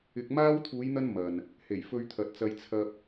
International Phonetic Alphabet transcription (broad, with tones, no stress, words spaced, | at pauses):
ɪ˧k̚maː˥w t̪ʰuː˨˧jn̪ɐ˧n mɐ˨n | he˨˩jfɵ˧ɥt̪ʰɐ˨t̚t͡sɐ˧j t͡sʰɐ˧p̚